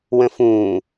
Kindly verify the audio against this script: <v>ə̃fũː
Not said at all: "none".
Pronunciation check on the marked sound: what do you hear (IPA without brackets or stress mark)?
w